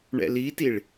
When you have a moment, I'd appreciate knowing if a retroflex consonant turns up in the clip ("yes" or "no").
yes